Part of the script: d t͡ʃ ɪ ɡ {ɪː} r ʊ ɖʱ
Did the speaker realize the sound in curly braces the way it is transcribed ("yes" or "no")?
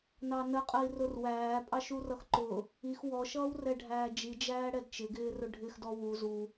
yes